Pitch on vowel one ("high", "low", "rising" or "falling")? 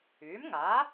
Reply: rising